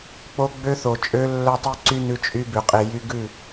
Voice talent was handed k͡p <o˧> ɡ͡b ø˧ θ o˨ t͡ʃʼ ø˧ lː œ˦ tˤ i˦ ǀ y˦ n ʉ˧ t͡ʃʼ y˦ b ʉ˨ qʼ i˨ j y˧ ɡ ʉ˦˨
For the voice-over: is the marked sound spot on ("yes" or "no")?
yes